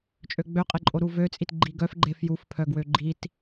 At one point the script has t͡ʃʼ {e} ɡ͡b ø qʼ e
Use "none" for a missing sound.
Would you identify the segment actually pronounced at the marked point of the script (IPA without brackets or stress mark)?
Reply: ø